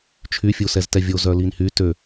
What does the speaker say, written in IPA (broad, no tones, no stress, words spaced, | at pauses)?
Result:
t͡ʃʰyfʲusɛztɛ vʲozœlinhy tø